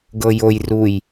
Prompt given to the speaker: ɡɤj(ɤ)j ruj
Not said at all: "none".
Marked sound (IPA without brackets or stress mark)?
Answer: o